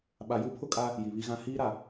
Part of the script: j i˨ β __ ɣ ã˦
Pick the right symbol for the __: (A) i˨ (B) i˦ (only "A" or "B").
B